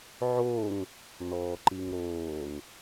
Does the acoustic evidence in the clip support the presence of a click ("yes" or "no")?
yes